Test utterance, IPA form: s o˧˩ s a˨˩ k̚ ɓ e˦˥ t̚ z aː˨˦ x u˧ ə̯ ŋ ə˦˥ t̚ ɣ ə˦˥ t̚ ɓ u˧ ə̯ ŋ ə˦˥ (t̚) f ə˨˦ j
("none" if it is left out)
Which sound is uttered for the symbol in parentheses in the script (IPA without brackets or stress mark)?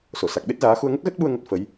t̚